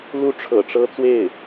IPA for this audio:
l u˥ ʈ͡ʂʰ ɤ̰˨˩ ʈ͡ʂ ɤ˥ t͡s w e˥˩ ɪ̯

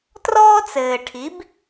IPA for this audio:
t r ɔː˦ t͡s ɘː˨ ʈʰ i˨˦ b

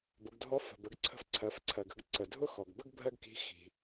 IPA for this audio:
b ʊ˩˧ ɡ dʱ ɔ˧˥ f ə̤˩ b ə˩˧ ɡ ǀʰ ə̤˧ f ǀʰ ɜ˩˧ f ǀʰ ɜ˩ ɡ ə̤˧ ɡ ǀ ə˩ dʱ ʊ˥ x ɔ˩ ɡ b ə˥ ɡ bʱ ɜ˥ ɡ k i̤˧˥ x i̤˩

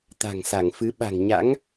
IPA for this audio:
t̪ a̤˨˩ ŋ s a˧˩ ŋ f ɨ˨˦ ɓ a̤˨˩ ŋ ɲ a̰˧˥ ŋ

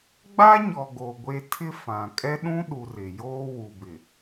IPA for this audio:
ɡ͡b a˦ ɲ ɔ˨ ɡ o˨ ɡʷ e˦ tʰ ɪ˦ f ã˨ kʼ ɛ˦ ɗ ũ˦ ɗ u˨ r ɪ˨ j oː˦ w u˨ b ɪ˨

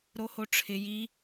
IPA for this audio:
ɾ o h o ʈ͡ʂʰ ɪ j i

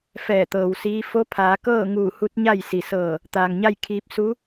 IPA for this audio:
f ɛː˧˩ t̪ ɤː˩ w s iː˧˥ f o˧˥ pʰ aː˩˧ k ɤː˥˨ ŋ uː˧˩ h u˧˥ t̚ ɲ a˥˨ j s i˩ s ɤː˧˩ | t̪ aː˩ ŋ ɲ a˥˨ j kʰ iː˧ p̚ s u˧˥

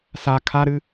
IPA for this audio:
s a kʰ a ɾ ɨ

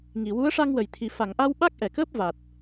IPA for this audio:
ŋ i˨˩˨ w u˧˥ ə̯ ʂ a˧ ŋ w ə˨˩˨ j t̪ʰ i˨˩ f a˨˩˨ ŋ ʔ a˧ w ɓ a˦˥ k̚ ʔ ɛ˨˩˨ k əː˦˥ p̚ v a˨˩ t̚

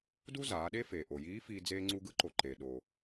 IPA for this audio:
d u˥ z aː˩˧ ɗ e˥ f eː˩ ʔ o˩ j iː˧˥ f iː˧ d͡z eː˧ ŋ͡ǀ u˧ ɡ ɯ˧˥ ǃ o˩ ǃ e˩ ɗ o˩

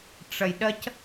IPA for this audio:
ʈ͡ʂ ɐ j ɗ ɐ c

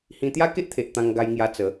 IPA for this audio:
h ĩ˧ t̪ j a˦ k e˦ ʔ t̪ʰ e˨ ʔ t̪ ã˧ ŋ ɡ a˧ j ŋ j a˧ t͡s ə˨˦

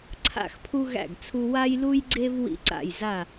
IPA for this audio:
ǀʰ a̰˦˨ x pʰ u˦ ɣ æ̰˦˨ ɡ t͡sʰ u˦ w a˦ j l u˦ j ɡ͡ǀ e˦ v w ḭ˦ ǀ a̰˦˨ j z a˦˨

